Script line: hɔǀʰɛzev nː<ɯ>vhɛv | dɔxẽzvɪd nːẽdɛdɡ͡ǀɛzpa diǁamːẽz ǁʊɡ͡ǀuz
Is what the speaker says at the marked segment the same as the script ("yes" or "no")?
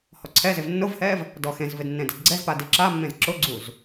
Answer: no